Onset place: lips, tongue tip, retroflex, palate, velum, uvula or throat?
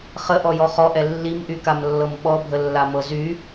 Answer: uvula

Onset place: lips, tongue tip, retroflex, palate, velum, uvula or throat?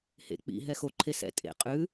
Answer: throat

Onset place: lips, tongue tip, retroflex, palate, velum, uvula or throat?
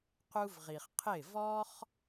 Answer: uvula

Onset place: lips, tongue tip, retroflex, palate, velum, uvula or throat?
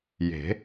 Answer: palate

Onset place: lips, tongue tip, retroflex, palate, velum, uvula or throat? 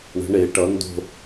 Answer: retroflex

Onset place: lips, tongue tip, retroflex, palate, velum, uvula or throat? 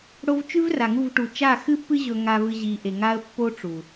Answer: retroflex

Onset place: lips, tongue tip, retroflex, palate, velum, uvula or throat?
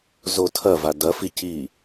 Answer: tongue tip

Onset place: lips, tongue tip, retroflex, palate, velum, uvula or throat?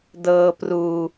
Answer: tongue tip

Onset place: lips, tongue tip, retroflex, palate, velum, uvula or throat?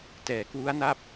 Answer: tongue tip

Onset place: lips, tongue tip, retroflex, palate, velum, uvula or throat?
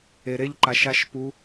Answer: tongue tip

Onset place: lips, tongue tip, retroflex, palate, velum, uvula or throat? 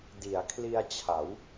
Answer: tongue tip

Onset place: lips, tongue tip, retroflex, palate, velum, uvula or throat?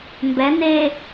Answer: lips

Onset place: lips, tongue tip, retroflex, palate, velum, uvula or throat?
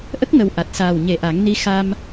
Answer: throat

